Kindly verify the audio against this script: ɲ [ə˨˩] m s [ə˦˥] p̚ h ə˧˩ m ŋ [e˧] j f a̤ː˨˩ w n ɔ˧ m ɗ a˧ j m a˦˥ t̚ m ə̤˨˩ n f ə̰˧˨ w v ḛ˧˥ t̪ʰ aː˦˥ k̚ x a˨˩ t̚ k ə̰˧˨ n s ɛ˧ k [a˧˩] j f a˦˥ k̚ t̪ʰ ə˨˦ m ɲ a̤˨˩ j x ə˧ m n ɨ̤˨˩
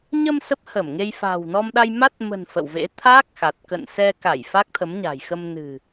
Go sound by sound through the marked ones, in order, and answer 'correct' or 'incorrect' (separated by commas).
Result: incorrect, correct, correct, correct